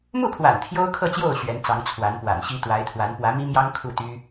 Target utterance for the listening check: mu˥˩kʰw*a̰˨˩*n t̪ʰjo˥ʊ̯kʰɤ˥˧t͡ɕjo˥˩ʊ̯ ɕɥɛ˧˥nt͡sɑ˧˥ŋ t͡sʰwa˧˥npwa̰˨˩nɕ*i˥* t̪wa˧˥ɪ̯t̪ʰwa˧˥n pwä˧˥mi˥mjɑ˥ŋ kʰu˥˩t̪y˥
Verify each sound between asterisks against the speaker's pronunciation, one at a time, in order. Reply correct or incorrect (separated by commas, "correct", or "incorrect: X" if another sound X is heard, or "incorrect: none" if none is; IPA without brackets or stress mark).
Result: correct, correct